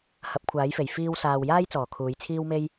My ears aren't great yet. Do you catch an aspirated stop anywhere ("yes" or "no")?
yes